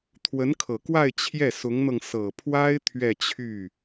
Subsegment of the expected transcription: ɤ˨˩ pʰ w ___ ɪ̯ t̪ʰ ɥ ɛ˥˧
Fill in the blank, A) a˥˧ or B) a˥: B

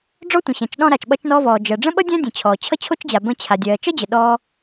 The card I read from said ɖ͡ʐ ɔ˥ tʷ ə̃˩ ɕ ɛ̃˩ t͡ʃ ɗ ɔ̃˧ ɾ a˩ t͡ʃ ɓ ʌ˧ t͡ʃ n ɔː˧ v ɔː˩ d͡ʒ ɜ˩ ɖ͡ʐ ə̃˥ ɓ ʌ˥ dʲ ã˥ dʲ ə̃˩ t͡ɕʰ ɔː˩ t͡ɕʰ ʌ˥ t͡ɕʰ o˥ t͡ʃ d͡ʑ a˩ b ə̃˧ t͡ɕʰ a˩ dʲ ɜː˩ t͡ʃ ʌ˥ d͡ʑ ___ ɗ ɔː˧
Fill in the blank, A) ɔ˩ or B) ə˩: B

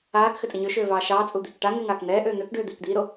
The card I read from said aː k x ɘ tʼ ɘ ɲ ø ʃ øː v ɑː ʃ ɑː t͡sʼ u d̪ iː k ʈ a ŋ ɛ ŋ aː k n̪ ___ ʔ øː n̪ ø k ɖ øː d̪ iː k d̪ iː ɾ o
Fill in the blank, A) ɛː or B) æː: A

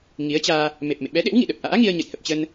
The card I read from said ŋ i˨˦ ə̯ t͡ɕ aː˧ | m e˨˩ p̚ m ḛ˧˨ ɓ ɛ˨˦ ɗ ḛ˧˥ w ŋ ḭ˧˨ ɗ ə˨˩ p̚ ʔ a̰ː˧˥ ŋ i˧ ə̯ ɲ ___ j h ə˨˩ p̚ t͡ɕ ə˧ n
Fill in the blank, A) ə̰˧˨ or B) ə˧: A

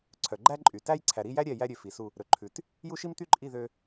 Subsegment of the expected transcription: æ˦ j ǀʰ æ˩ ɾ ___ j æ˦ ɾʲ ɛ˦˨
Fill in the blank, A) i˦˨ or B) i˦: A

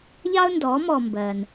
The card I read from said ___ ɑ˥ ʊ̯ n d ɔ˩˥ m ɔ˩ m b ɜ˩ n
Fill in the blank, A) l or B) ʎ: B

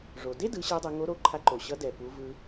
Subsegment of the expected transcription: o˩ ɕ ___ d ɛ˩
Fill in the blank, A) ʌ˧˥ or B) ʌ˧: A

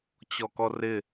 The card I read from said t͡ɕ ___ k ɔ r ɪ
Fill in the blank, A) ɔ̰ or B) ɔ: B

